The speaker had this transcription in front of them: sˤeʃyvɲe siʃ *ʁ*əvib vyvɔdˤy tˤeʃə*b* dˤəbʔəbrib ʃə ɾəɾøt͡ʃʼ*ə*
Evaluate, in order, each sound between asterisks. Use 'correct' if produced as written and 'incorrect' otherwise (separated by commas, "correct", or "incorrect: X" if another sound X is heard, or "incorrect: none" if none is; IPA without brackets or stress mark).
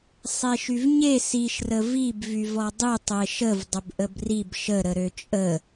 incorrect: r, incorrect: v, correct